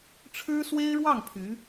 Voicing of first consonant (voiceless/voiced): voiceless